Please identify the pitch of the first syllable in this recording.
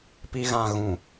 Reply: low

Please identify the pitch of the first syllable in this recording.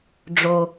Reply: low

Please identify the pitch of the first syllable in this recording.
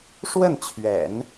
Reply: falling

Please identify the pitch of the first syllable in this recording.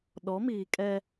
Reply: rising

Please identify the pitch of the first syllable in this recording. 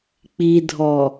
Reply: low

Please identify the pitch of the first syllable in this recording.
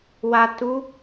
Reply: low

